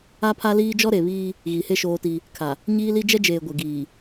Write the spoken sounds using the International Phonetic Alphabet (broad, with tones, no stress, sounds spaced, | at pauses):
a˦ pʰ a˦ l iː˦ d͡ʒ ɔ˦ ɾ e˨ β iː˦ | ɣ i˨ h e˦ ʃ oː˦ t i˦ | kʰ a˨ | ɲ iː˦ l i˦ d͡ʒ ɛ˦ d͡ʒ eː˨ ɡʷ e˨ ɡ iː˨